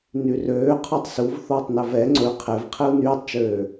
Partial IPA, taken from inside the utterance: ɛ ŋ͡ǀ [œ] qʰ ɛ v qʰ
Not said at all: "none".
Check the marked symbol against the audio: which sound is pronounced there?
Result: ɵ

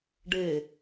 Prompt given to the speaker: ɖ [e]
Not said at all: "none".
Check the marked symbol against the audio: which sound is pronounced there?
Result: e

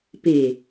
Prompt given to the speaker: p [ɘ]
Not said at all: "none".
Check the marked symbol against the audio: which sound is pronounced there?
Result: e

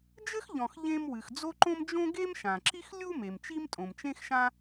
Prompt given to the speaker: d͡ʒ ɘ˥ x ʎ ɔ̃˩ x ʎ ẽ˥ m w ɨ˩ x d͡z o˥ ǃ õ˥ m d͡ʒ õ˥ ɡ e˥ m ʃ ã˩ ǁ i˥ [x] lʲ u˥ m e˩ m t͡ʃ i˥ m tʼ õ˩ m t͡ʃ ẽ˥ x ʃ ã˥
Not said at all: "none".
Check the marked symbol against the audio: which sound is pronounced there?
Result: x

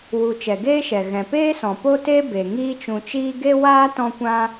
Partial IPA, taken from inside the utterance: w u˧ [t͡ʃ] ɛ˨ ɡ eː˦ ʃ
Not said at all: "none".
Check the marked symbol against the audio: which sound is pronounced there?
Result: t͡ʃ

